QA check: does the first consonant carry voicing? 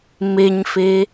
yes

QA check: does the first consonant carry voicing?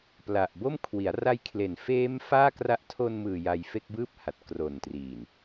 no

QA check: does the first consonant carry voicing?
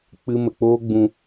no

